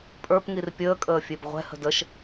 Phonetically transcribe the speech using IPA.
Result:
pʼə˞pŋir pʲəːkʼəː fʲebʁʷɛ̤hə̤d əʃ

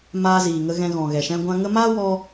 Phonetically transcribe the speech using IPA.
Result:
maː˧ ziː˨ŋə˧ ɣɛ̃˧ɣɔ̃˨ɣɛ˨ ʃɛ̃˧ɡʷã˧ŋə˦ maː˦wɔ˧

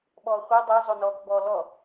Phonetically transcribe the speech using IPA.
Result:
ɓɔːχʷi dˤo zˤonɔːkbɔ lɔ

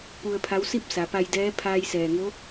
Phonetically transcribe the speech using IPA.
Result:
pu˧ə̯pʰa˧˥w si˥˨p̚ sa˩˧pa˧jdɛː˧˥ pʰaː˧jsɛː˩ŋo˧˥

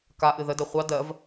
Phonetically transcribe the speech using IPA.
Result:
kaʔɨ ðədɜ χʷɑ dɜv

